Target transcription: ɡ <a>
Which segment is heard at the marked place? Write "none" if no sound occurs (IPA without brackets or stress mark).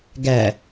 æ